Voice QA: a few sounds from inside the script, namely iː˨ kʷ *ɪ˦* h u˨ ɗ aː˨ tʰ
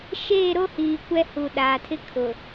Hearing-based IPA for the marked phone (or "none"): ɛ˦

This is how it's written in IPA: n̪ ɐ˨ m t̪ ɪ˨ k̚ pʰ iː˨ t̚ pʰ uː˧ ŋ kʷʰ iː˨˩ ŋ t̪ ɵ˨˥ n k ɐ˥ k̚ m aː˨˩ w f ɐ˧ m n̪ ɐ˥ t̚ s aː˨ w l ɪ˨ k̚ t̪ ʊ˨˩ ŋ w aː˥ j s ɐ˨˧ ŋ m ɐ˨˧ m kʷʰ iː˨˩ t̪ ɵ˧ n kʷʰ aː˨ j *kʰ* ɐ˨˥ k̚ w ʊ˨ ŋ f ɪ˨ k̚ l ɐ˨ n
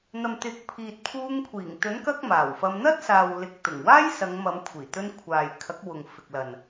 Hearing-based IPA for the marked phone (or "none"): kʰ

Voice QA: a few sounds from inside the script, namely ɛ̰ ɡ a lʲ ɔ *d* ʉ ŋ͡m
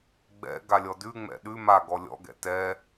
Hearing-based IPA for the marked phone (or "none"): d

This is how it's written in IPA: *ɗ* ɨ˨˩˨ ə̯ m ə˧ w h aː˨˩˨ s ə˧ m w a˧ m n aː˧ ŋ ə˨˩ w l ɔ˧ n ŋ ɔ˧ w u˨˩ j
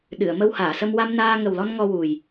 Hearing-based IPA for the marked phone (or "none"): ɗ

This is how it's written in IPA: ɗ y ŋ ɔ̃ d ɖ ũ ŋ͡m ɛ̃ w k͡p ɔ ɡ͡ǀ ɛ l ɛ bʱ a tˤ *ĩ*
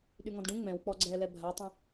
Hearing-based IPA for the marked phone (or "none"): ẽ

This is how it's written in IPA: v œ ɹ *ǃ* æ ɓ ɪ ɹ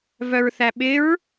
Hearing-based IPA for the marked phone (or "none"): θ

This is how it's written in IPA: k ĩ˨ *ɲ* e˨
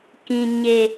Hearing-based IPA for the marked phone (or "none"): ɲ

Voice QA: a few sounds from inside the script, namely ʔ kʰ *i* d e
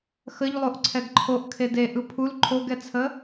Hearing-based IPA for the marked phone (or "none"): e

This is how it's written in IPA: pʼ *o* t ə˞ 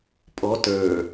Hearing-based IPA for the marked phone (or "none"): ɔ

